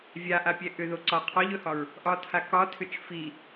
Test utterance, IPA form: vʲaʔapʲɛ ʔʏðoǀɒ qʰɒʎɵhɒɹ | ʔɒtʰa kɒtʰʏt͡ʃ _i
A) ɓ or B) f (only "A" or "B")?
B